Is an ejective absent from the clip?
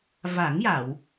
yes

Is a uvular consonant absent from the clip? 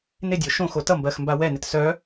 yes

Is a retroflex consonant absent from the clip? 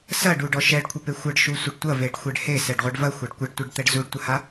no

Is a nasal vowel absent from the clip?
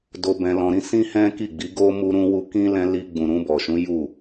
no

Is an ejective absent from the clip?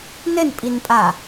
no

